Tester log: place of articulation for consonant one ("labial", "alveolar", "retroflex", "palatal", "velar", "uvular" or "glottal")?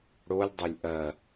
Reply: retroflex